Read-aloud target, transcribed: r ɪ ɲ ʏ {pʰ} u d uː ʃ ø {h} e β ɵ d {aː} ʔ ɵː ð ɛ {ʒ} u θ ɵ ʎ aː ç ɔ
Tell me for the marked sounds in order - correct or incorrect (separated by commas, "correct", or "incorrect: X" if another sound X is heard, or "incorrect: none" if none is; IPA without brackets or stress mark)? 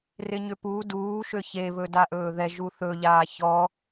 incorrect: p, incorrect: ç, incorrect: a, correct